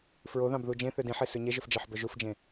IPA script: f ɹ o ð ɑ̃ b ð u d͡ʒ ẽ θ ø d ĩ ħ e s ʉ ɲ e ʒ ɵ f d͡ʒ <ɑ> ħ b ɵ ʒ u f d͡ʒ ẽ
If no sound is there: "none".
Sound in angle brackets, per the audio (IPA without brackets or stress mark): ɑ